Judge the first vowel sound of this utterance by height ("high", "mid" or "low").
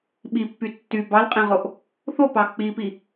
high